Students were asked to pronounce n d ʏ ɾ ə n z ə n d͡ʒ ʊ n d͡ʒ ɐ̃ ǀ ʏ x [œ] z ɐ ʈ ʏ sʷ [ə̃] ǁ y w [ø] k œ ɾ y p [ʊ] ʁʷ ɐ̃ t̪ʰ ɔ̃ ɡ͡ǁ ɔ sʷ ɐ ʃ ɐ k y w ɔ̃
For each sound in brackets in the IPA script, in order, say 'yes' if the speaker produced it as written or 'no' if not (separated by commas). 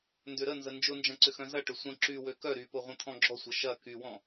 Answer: no, yes, yes, yes